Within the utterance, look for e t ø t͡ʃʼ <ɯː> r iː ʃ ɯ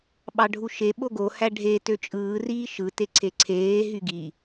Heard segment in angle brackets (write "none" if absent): ɯː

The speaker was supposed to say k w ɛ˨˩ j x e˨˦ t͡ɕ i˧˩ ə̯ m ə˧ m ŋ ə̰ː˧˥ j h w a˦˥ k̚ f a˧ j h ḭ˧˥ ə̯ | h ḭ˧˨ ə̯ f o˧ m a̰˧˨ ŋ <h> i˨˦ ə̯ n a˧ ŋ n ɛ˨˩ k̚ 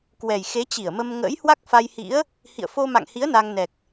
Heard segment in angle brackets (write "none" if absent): h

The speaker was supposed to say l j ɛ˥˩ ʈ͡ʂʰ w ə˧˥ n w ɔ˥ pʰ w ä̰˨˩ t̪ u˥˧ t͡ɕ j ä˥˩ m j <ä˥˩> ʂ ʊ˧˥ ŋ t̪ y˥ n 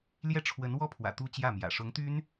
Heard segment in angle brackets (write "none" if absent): ä̰˨˩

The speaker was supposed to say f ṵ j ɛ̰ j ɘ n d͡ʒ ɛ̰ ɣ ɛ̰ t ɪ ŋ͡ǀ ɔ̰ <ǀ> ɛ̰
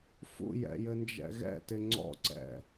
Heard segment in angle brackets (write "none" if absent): ǀ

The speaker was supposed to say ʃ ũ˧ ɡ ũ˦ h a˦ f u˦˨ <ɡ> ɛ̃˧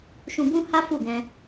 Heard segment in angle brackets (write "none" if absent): ɡ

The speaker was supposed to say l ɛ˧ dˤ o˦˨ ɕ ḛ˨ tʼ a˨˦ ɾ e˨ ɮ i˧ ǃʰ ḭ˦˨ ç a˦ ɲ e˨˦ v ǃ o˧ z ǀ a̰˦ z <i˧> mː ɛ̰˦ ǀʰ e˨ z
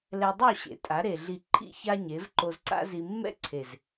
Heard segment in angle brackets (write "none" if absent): i˧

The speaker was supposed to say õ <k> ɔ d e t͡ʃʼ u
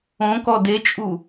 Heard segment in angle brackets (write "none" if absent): k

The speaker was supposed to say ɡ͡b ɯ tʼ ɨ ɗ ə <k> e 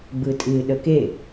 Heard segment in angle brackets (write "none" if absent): k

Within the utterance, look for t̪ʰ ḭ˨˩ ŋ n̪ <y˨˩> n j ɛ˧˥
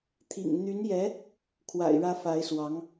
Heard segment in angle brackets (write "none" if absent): y˧˥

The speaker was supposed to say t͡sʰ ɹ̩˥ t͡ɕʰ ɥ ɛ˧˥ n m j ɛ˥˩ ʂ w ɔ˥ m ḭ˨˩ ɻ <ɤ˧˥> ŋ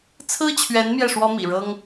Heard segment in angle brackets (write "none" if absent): ɤ˥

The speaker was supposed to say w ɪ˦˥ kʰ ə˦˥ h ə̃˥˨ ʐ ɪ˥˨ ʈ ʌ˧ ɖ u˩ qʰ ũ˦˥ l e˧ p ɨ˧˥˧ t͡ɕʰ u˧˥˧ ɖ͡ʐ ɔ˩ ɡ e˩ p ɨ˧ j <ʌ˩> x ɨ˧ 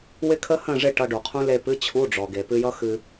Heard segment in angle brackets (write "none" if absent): ʌ˦˥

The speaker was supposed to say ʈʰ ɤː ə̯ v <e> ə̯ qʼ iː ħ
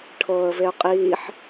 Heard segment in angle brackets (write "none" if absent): e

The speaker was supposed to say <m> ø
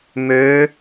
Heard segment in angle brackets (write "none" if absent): m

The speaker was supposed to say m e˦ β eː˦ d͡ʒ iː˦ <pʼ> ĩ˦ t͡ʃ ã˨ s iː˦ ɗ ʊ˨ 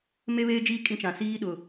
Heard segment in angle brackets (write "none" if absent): kʼ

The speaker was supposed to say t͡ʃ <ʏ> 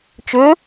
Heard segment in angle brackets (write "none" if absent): ʏ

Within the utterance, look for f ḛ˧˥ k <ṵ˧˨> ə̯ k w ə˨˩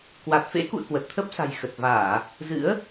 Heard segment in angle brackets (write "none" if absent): ṵ˧˨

